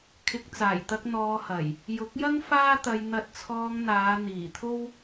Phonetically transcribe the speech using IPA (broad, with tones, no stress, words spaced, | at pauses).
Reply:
kʰɪ˧k̚ t͡saː˨˩jt̪ɐ˧k̚ n̪ɔː˧hɐ˨˩j | jʊ˨˥k̚jɐ˥ŋ faː˥t̪ɐ˧j n̪ɐ˧t̚t͡sʰɔː˧ŋn̪aː˨˧ n̪iː˨˩t̪ʰo˥w